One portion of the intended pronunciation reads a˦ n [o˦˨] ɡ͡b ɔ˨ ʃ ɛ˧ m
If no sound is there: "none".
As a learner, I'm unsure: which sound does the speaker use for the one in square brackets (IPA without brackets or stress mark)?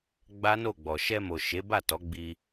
o˦˨